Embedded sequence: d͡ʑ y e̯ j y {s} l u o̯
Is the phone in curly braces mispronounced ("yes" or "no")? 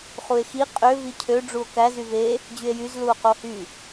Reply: yes